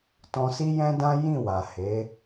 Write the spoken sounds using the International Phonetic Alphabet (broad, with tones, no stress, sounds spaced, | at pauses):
t ɔ̃˧ s i˦ j ɛ̃˦ d ã˦ j ĩ˦˨ w a˨ h e˨˦